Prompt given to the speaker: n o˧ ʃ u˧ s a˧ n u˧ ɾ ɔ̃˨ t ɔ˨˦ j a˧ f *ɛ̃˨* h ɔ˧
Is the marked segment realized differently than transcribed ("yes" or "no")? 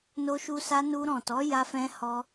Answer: yes